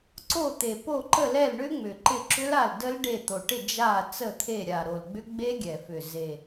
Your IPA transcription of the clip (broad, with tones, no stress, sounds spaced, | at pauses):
ǀ o˦˨ t̪ e˨˩ p o˦˨ ǃ ə˦˨ l ɛ˦˨ l ɳ ʏ˦˥ ŋ͡m ʏ˨˩ ǃ ɪ˦˨ ǁ ʏ˦˥ l a˦˨ l d ə˦˥ l ɖ e˦˨ t̪ o˨˩ ʈ ɪ˦˨ d͡ʒ a˦˨ t͡s ə˦˨ t̪ʰ e˦˨ ɾʲ a˨˩ ɾ o˨˩ l ɡ͡b ʏ˦˥ ɡ͡b e˦˥ ɡʲ ɛ˨˩ f ʏ˨˩ z e˨˩